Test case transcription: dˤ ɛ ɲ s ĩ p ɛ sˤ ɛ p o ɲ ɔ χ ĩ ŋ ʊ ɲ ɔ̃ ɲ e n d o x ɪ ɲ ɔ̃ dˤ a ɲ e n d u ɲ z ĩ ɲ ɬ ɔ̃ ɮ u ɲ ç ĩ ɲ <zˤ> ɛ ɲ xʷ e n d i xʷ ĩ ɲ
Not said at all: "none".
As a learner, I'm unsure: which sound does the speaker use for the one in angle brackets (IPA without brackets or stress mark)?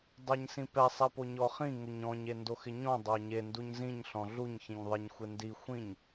ðˤ